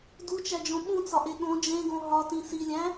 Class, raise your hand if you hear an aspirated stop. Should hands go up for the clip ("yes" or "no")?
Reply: no